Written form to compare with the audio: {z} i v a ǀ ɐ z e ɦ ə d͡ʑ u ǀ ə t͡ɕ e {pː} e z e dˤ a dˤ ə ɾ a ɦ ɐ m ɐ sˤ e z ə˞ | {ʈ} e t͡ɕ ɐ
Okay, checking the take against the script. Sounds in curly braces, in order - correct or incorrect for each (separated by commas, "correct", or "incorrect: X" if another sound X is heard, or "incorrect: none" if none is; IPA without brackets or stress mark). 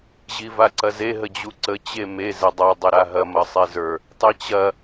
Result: incorrect: ʑ, incorrect: m, incorrect: tˤ